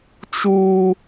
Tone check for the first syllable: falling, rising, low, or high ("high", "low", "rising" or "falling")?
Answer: high